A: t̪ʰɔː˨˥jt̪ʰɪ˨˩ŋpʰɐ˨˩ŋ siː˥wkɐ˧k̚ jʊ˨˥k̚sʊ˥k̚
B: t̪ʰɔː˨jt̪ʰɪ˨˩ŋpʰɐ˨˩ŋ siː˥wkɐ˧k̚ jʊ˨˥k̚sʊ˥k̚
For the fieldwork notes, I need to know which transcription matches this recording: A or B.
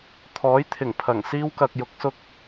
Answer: A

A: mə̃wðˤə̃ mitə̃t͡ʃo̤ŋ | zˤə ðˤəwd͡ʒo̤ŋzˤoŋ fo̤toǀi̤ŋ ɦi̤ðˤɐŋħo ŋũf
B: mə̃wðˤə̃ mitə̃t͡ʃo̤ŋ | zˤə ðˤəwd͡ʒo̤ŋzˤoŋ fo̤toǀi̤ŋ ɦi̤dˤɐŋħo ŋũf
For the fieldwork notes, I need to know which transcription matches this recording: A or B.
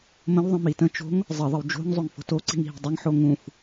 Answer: B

